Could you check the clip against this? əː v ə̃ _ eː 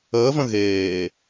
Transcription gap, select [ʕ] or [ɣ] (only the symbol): ɣ